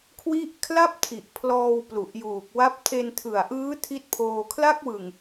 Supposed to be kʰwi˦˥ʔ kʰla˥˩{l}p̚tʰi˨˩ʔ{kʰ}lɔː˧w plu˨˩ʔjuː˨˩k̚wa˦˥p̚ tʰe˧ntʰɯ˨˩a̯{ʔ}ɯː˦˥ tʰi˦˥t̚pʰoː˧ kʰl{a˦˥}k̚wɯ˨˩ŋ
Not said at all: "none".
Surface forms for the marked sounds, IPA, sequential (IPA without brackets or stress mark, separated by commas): none, pʰ, ʔ, a˦˥